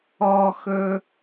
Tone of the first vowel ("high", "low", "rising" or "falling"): low